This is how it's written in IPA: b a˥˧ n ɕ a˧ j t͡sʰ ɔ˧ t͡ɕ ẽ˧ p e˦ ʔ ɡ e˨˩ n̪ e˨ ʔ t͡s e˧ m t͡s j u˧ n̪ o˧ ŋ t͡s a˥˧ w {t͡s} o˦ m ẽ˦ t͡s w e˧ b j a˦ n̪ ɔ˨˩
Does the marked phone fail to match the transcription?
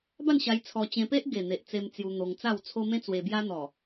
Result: yes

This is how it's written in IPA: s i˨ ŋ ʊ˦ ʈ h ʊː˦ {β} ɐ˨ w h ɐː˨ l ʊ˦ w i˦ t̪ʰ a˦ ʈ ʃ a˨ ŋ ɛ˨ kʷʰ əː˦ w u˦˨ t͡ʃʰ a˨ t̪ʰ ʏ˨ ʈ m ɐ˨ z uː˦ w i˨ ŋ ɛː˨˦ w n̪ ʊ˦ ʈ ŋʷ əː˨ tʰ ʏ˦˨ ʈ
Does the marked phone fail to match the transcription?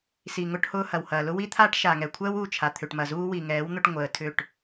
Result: yes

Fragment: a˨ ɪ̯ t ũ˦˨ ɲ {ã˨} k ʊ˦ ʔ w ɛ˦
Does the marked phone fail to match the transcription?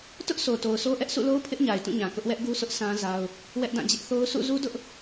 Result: no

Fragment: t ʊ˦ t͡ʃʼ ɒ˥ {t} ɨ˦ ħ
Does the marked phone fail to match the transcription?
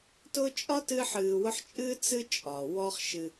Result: no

